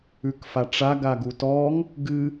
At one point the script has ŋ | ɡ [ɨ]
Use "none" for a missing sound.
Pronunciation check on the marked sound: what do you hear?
ɨ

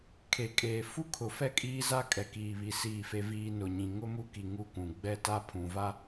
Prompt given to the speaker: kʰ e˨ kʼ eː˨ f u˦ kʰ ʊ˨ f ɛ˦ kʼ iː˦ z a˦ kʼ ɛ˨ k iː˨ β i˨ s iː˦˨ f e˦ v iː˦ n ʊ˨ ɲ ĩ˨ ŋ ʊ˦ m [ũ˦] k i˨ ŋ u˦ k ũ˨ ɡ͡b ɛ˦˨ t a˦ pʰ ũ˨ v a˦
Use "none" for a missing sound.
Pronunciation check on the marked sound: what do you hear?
u˦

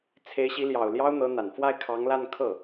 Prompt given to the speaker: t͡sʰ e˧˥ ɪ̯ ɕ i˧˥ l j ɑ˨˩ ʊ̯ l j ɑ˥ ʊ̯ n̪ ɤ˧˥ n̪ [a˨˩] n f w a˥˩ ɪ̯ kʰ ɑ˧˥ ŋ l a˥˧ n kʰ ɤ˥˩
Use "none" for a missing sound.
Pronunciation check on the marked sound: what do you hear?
a˨˩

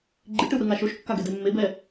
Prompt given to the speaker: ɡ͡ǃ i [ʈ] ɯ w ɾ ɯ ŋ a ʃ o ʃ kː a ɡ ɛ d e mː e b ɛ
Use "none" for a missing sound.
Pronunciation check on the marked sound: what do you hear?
ʈ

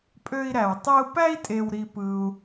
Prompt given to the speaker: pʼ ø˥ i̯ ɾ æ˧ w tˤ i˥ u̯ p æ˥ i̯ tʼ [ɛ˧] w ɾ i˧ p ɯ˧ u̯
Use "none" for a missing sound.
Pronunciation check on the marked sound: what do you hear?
e˧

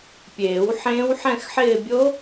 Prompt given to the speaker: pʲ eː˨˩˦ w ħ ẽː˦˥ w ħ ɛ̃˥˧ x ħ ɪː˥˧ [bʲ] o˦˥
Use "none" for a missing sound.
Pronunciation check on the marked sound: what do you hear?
bʲ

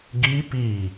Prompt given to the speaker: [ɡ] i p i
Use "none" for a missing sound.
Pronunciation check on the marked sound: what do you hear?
ɡ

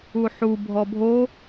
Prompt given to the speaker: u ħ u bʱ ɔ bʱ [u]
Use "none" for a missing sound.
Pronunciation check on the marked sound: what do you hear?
o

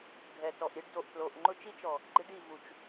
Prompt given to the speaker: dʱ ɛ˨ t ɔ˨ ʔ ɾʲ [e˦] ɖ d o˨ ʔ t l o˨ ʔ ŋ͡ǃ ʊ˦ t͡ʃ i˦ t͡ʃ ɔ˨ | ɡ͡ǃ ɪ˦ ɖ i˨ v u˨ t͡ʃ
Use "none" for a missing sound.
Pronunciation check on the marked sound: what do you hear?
e˦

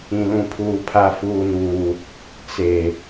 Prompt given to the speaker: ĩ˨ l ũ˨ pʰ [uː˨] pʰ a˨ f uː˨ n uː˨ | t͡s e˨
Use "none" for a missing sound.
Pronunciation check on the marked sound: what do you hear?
uː˨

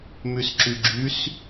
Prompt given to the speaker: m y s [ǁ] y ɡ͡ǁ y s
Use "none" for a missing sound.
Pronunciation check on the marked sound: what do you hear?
ǁ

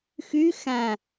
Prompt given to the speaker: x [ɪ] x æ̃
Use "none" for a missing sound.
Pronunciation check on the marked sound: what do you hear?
y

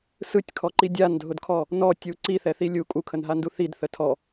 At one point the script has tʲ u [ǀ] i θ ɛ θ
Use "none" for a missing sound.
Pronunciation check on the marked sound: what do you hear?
ǀ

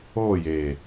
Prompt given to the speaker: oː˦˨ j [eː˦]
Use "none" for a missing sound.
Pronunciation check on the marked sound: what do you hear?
eː˨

